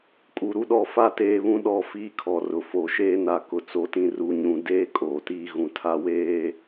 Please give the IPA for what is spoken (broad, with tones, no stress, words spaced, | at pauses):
kʼu˨ɾu˦ɗɔ˦˨ fa˦ teː˨βũ˦ ɗɔ˦˨fiː˦kʰɔ˨ rʊ˨fo˨ʃeː˦ na˨ kʊ˨t͡so˨˦tĩ˨ ru˨ ɲũ˨ deː˦ kʼoː˨tiː˦ ɣũ˨tʰa˦ weː˦